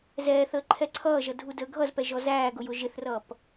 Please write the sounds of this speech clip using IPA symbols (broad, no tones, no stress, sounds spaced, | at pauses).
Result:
z ɛː θ əː ǃʰ ɛ ǀʰ ʌː ʒ ʌ dʱ u d əː ɡʱ ʌ z p ɛ ʒ ɔ z æː ɡ ʊ j ʊ ʒ ɪ θ r ʌː p